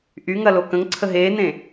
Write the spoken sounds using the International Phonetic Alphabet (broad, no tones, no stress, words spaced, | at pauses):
ʔyŋɐlo kə̃ŋǀʰə ɦeːnẽ